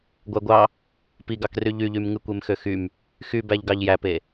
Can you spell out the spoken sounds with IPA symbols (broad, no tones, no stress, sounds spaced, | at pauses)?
ɡʷ æ ɡʷ ɑ | p i ɡ ɑ k r y ʎ y ʎ y m ŋ ɯ kʷ e m x ø x y m | x y b æ ʎ ɡ ɑ ʎ j æ p e